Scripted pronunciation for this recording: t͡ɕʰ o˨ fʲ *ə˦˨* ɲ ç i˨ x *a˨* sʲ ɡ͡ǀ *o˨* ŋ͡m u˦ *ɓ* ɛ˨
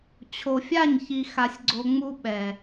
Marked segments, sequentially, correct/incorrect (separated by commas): incorrect, correct, correct, correct